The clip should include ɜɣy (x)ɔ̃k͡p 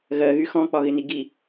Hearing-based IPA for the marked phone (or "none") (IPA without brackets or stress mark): x